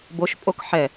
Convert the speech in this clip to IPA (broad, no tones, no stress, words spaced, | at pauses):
boʃ pʼokħɛ